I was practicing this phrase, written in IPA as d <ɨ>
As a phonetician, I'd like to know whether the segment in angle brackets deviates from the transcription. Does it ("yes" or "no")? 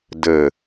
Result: yes